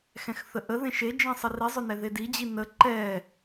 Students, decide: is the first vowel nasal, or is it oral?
nasal